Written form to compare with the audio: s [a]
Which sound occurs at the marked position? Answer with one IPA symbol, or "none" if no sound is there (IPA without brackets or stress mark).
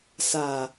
a